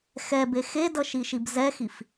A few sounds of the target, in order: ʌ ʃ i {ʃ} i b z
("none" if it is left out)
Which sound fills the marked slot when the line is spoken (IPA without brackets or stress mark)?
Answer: ʃ